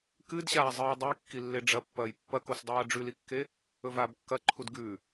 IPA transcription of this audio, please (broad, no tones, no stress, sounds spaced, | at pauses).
k ɨ d ɕ aː zˤ ɨː dˤ u j kː i lː e ɖ͡ʐ ɐ pː ɐː j pː ɐ k o s dˤ aː ɖ͡ʐ ʉ l i kː e | ɵ v aː b kː ɐ ǃʰ u d ɡ ʉ